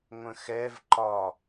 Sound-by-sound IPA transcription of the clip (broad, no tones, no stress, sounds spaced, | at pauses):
ŋʷ ə̃ x ɛ v ǃ ɒ